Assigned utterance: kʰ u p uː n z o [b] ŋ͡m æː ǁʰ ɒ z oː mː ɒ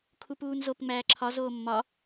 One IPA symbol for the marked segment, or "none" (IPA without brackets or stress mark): p